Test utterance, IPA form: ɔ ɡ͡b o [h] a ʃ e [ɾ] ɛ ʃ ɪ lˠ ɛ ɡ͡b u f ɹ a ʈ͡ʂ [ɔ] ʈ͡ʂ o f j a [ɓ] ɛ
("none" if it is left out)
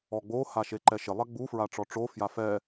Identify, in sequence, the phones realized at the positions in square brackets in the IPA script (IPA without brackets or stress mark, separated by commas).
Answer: h, ǃ, ɔ, f